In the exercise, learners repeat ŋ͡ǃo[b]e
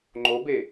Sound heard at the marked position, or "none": b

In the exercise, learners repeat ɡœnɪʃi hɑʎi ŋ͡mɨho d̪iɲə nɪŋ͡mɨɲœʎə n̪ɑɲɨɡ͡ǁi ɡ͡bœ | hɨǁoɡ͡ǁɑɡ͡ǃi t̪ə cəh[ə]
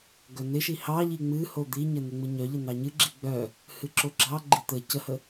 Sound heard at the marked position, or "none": ə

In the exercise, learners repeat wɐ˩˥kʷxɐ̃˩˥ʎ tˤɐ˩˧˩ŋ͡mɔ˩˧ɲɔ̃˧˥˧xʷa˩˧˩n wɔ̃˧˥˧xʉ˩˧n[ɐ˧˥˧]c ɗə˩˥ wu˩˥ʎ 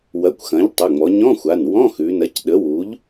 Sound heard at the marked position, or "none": ɐ˩˥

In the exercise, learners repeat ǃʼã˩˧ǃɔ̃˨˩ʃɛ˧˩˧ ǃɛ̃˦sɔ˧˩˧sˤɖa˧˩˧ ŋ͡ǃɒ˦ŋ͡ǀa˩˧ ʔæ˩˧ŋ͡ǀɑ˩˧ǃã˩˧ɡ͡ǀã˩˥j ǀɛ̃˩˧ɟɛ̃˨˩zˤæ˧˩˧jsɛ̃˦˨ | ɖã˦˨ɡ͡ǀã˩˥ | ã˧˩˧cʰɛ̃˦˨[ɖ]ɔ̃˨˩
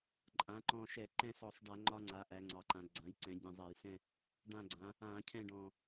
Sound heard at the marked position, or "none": ɖ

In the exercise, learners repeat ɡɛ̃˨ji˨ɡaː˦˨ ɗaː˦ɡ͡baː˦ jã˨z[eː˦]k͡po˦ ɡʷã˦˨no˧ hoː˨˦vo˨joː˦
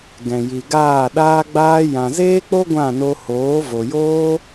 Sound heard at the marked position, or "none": eː˦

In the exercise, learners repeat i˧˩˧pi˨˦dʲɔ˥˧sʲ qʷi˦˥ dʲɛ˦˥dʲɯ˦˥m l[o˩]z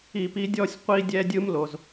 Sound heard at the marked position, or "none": o˩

